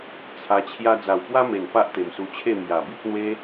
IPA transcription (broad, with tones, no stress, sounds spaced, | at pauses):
t͡sʰ a˧ t͡ɕʰ j a˦ d͡z a˨˩ w p w a˦ m e˨˩ n p a˦ ʔ t̪ e˨˩ m s u˧ t͡ɕʰ e˥˧ m j a˨˩ b i˦ t̚ n̪ w e˦